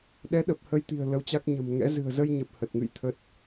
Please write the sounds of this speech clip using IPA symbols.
ɗɛ˨˦ɗə˨˩p̚ hə˧jt̪i̤˨˩ə̯ lə˨˦wt͡ɕa˦˥k̚ ɲə̤˨˩mŋɛ̰˧˥ zɨ̤˨˩ə̯zə˧jɲə˨˩p̚ hə˨˩t̚ŋɨ̰˧˨jt̪ʰə˦˥t̚

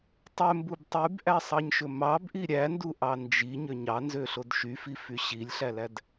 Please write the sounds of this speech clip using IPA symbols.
tˤømbub tˤybʔæsˤɑɲʃɵ mɑbʔi ɾʲænduʔɑ nd͡ʒiɲø ɲɑnzøɬod ʃyfify ɕilʲɬælæd

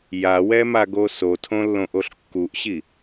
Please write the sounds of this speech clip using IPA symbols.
jawɛmaɡo sotʰõlːõʔoɬ kːuʔɕi

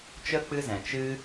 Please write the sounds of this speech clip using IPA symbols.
t͡ʃə˦ k͡pɨ˦zɛ̃˨ t͡ʃɨ˦

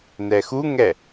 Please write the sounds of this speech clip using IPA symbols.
nɛxuŋɛ

